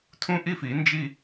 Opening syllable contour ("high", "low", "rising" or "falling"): high